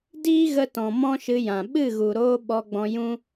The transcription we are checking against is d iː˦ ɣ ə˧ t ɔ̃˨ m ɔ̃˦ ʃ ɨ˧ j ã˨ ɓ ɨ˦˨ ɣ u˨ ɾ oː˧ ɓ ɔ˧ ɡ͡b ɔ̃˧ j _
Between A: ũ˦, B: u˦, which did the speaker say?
A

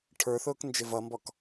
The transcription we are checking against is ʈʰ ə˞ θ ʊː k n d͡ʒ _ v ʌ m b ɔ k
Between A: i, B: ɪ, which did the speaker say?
B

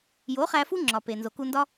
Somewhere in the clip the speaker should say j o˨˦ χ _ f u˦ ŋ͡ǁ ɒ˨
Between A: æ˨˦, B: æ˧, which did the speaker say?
B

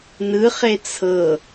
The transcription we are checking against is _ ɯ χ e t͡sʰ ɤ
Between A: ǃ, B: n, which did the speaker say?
B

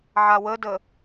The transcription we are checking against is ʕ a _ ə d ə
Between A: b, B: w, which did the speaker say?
B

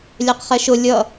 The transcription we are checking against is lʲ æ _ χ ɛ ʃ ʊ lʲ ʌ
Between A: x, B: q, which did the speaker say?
B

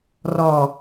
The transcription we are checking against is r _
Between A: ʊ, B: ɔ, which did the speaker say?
B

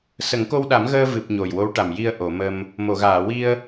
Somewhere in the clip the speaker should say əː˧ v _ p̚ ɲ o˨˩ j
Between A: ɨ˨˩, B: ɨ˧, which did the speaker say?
A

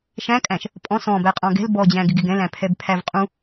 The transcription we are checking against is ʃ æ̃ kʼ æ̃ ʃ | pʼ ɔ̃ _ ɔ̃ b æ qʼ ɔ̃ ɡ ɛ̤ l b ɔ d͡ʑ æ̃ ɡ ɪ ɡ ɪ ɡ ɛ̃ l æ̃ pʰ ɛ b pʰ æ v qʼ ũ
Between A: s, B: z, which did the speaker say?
A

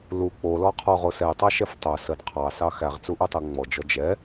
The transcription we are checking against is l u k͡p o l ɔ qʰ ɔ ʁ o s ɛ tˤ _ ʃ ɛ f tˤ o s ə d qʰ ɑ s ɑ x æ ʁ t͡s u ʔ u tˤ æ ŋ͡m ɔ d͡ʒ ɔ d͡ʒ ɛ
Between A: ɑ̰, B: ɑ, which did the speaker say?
B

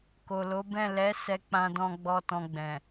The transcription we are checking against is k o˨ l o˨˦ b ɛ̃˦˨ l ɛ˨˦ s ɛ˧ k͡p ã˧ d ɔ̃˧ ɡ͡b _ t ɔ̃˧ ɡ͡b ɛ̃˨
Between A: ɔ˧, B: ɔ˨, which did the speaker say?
A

